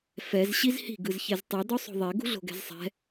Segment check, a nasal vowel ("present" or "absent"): absent